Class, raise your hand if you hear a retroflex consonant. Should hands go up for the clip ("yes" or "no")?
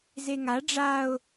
yes